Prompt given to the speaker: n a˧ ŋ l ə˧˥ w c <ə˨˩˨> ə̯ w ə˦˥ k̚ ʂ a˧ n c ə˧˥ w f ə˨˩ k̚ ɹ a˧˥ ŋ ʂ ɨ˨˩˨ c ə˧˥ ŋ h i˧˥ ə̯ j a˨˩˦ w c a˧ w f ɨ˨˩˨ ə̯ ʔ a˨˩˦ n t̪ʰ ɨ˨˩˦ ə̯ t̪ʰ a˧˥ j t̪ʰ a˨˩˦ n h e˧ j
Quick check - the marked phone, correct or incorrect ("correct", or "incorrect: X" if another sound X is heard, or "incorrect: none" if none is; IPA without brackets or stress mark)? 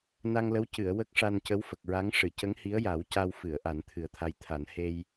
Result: incorrect: ɨ˨˩˨